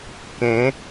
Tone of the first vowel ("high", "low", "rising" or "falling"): rising